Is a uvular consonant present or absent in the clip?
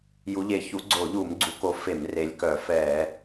absent